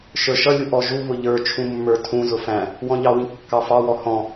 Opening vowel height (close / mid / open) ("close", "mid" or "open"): mid